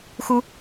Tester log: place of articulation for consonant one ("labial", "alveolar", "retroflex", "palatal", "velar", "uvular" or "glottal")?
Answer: velar